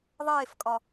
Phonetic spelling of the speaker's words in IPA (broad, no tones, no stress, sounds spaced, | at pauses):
ðˤ eː f kʼ ɒ